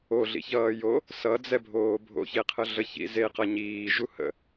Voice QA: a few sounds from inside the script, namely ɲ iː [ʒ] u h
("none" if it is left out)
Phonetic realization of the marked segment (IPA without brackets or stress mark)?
ʒ